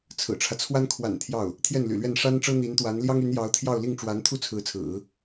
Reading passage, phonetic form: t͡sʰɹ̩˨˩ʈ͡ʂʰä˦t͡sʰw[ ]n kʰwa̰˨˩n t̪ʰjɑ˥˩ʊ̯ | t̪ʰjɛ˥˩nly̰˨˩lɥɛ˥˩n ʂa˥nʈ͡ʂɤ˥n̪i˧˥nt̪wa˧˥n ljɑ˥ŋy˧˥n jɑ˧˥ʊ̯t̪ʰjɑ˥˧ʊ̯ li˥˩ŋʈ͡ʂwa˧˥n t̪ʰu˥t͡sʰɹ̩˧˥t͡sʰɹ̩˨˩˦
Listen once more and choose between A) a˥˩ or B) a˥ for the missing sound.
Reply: B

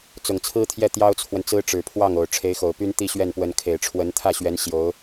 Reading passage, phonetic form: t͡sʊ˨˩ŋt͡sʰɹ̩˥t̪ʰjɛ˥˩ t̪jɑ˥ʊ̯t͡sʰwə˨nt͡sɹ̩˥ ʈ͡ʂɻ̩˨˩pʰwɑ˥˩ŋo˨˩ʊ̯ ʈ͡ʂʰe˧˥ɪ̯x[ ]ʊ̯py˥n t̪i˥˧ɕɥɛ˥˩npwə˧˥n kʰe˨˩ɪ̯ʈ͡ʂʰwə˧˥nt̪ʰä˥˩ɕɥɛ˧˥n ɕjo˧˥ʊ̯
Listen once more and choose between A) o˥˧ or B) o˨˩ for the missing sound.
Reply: B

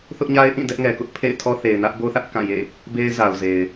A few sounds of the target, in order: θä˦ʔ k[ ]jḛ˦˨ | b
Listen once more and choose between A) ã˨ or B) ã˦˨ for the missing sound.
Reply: B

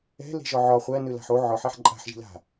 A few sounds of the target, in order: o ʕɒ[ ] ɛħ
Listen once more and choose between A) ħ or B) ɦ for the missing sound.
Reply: A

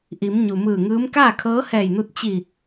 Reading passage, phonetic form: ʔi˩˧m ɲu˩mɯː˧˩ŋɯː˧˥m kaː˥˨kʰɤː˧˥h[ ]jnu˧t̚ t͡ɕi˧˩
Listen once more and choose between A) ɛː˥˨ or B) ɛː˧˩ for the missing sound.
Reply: B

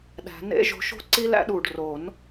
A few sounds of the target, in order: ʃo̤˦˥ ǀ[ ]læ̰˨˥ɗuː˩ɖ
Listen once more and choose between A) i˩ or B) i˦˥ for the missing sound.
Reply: B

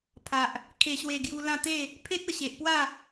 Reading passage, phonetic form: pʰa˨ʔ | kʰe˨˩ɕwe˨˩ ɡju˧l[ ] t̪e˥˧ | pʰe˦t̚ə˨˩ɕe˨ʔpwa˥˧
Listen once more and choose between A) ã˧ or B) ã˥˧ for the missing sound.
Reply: B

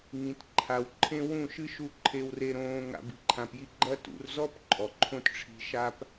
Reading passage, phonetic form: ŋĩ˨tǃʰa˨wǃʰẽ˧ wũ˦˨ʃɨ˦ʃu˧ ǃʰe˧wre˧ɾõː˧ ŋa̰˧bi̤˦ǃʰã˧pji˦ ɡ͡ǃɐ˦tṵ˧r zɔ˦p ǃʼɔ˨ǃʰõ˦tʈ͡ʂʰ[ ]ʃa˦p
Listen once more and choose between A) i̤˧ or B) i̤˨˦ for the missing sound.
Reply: A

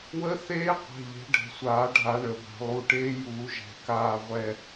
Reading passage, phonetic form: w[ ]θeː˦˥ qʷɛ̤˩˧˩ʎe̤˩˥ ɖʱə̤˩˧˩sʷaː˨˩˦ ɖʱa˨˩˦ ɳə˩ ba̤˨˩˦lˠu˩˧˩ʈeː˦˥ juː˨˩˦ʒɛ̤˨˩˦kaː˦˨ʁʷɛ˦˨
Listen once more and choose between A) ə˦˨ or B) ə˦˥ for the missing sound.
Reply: B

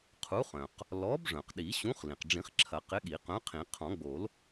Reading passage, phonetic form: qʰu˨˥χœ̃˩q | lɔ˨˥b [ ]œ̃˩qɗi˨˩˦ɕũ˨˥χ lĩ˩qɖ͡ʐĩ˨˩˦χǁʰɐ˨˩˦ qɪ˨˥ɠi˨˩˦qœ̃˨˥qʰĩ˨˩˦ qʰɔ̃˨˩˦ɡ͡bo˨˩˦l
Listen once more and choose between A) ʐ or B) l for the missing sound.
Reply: A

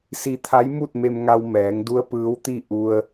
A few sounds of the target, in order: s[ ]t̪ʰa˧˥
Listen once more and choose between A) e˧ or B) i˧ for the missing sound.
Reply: B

